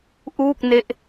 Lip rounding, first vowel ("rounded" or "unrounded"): rounded